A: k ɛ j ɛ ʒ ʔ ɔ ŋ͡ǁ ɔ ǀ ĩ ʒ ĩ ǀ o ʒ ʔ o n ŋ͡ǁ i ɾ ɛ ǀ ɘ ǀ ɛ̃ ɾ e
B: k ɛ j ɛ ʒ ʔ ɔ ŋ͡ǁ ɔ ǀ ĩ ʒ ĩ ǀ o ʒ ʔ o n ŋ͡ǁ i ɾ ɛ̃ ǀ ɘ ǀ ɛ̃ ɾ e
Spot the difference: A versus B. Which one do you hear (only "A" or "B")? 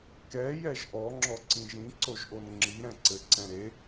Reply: B